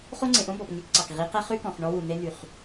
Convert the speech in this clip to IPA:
χ o˦ ŋ͡ǀ ẽ˨ ʔ õ˦ b ɔ˨ p ŋ e˦ k ǀ ɑ˨ k ʁ i˨˦ q ɛ˦ χ ʉ˦ k ɔ̃˨ χ ɳ ɔ˦ w u˨ n e˦ n̪ y˨ χ

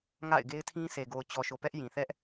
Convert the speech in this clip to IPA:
ŋ a̰˦˨ ɪ̯ ɡ e˦ ɪ̯ tʰ ĩ˦ s e˨ ɡ o˨ ʊ̯ t͡ɕ ɔ˨ ʃ o˨ p ɛ˦ ʔ j ĩ˨ θ ɛ˦ ʔ

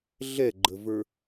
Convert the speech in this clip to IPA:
ɮ ɛ ɡ͡ǃ ə v ə˞

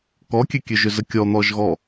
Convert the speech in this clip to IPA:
k ɔ kʲ ø kʲ ø ʒ ʏ z ə kʲ ɔ n̪ ɔ ʒ ɣ ɔ

